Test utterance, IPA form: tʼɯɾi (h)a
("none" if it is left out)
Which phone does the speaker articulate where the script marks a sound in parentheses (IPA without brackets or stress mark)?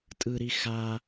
x